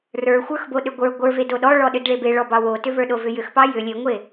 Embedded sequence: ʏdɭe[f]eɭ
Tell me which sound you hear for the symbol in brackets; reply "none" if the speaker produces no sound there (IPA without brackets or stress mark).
b